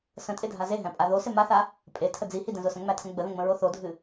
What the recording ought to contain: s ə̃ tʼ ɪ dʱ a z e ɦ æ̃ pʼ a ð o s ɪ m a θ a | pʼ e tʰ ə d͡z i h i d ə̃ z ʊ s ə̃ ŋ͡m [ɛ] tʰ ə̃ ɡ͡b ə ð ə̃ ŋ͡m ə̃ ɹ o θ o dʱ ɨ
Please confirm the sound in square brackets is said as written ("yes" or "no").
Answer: no